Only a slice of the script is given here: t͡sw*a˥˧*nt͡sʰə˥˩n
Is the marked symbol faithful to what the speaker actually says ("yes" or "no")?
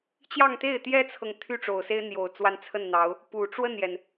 yes